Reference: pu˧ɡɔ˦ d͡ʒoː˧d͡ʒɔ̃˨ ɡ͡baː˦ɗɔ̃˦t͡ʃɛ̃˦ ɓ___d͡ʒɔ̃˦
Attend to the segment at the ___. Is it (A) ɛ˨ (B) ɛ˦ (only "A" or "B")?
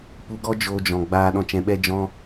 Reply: B